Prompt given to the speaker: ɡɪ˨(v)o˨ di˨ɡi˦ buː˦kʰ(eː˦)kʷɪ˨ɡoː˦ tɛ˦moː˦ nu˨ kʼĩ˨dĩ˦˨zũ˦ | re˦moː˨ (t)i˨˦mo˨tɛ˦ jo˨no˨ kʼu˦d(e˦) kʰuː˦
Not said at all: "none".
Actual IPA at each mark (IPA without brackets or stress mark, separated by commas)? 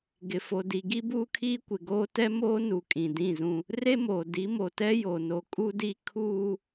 f, iː˦, d, i˦